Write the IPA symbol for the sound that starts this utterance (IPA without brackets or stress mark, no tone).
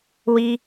w